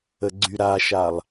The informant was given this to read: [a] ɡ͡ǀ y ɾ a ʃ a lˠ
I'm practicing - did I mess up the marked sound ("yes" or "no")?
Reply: yes